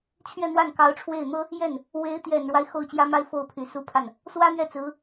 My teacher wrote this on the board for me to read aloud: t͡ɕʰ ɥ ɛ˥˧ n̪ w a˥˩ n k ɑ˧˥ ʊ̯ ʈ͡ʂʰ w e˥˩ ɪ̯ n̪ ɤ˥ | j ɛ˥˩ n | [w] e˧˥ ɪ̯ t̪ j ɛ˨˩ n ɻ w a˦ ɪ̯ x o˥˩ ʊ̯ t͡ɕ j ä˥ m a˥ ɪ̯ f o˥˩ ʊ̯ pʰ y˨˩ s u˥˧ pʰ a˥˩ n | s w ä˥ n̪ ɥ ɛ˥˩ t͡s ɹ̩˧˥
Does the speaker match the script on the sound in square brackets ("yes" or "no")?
yes